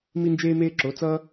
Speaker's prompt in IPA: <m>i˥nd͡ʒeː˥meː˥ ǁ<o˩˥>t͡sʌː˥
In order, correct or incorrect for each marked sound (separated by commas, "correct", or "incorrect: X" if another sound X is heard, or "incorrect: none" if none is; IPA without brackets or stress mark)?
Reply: correct, correct